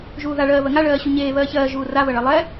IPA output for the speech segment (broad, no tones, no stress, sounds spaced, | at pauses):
ʒ uː ð a ɭ ɜː β ɜ ŋ a ɭ ɜː ɕ u ɲ eː β ɜː ç ɜː ʒ uː r a β ɜ ɭ ɜ lˠ ɛ